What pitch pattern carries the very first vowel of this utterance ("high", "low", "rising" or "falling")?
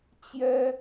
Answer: high